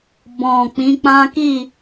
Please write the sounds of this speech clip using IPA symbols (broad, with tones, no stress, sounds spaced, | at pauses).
b ɔ̃˨ k͡p ĩ˨˦ k͡p ã˦ k i˦˨